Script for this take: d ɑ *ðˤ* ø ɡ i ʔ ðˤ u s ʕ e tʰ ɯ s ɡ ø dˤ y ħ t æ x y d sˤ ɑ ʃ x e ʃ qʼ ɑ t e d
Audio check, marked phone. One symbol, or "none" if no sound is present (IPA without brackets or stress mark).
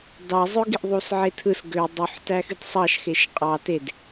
zˤ